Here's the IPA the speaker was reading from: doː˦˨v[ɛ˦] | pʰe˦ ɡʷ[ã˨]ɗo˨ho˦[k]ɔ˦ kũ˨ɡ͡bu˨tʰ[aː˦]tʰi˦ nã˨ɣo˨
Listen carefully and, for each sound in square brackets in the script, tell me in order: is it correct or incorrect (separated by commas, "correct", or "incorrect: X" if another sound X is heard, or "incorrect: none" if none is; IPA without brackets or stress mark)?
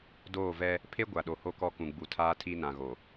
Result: correct, incorrect: a˨, correct, correct